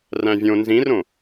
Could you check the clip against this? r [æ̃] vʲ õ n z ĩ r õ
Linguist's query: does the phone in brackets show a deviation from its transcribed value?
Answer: no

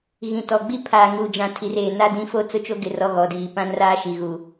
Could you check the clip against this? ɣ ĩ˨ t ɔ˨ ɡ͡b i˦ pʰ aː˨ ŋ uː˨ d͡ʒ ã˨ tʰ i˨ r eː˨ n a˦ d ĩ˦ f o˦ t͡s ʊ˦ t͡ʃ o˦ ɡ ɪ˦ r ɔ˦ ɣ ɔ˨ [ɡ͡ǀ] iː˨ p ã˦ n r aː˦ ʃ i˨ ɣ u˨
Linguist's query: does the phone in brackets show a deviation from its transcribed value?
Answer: yes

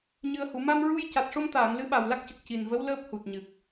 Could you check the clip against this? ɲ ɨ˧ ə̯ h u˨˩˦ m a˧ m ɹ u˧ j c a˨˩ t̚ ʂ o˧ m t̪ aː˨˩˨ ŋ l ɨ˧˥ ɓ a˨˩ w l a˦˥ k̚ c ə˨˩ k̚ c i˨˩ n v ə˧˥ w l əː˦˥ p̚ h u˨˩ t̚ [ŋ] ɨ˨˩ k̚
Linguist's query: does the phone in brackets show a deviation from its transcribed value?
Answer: yes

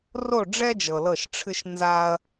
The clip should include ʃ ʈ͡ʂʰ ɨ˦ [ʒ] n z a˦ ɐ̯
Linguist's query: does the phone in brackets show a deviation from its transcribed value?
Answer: yes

